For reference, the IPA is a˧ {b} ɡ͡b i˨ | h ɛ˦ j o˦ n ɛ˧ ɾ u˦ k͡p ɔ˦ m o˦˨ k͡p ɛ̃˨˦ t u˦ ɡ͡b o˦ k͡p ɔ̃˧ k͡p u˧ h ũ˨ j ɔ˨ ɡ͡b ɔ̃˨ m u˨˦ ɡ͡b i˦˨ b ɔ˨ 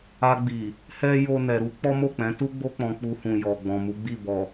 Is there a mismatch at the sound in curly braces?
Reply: yes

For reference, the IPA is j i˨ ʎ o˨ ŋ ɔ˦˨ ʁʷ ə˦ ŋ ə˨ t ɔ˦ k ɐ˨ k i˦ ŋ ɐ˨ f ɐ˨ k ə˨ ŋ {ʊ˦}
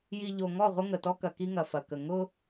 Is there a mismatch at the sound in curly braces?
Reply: no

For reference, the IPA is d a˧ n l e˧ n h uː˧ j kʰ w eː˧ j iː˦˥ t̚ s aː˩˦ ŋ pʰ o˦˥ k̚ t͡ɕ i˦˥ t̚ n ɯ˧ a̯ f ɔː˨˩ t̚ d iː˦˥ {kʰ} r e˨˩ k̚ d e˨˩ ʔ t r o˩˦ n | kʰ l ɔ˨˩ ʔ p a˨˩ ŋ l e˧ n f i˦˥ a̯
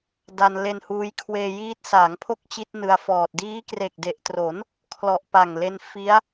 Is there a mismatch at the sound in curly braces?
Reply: yes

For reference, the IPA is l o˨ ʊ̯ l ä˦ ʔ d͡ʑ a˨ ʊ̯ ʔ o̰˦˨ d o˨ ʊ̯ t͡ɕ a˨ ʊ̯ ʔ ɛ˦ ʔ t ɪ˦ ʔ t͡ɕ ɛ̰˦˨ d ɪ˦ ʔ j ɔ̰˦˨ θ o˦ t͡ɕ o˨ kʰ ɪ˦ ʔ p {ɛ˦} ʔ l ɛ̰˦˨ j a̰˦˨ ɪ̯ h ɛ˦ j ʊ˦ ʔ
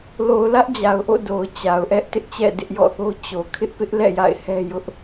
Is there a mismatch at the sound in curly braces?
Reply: yes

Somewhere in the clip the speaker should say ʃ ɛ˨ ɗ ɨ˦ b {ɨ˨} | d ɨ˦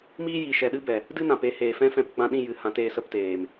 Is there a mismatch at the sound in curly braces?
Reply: yes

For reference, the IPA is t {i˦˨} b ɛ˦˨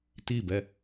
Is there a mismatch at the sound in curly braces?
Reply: no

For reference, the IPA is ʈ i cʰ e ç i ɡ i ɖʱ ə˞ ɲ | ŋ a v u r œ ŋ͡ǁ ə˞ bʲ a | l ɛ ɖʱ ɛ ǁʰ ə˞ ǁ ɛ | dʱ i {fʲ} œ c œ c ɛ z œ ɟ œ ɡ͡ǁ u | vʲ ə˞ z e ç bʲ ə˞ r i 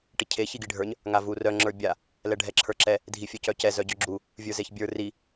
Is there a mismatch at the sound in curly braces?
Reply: no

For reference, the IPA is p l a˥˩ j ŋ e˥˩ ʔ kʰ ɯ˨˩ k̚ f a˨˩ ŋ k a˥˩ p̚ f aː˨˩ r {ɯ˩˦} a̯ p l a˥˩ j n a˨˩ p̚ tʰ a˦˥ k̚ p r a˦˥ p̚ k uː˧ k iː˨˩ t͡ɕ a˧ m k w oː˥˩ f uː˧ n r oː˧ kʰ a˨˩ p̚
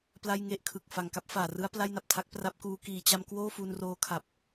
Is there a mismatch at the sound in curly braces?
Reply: yes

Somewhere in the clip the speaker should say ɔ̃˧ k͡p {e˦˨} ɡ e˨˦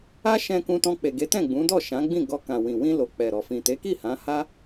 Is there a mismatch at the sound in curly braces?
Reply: yes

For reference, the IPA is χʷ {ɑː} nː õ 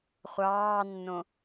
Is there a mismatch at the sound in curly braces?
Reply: no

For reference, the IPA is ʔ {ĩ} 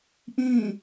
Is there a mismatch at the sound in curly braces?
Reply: no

